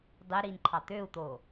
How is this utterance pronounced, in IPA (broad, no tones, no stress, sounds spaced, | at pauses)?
dˤ e ɾ i n ǃʰ ɑ t̪ ø u̯ t̪ o